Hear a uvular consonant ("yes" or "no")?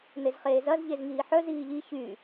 yes